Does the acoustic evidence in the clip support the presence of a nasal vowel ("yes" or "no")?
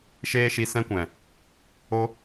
yes